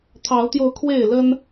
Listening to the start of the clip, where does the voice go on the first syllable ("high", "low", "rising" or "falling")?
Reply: rising